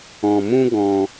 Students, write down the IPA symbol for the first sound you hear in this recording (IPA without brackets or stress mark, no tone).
ɔ̃